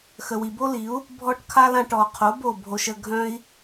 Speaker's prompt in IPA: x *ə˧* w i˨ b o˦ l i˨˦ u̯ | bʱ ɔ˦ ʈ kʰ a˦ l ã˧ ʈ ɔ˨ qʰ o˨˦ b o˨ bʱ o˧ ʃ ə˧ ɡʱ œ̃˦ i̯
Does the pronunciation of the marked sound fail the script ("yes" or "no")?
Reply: yes